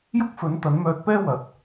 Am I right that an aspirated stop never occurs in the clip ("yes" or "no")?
yes